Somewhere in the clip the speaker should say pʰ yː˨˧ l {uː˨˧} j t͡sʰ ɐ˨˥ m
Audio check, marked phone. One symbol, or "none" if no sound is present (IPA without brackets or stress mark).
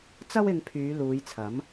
uː˨˧